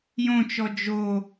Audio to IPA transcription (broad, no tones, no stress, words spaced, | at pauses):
jõt͡ʃɔ d͡ʒo